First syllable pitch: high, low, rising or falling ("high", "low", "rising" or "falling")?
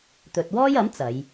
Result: low